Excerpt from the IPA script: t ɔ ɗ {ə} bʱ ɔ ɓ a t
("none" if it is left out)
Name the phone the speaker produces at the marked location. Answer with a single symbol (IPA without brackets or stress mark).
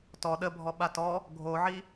ə